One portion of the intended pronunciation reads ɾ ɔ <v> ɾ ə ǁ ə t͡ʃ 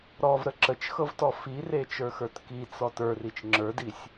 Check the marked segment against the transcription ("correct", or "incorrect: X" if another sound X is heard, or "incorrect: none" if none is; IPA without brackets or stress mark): correct